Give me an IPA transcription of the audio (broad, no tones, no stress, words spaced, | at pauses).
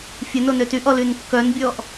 fʲənonø tyʔɔlyn kːœnbʲɔʔ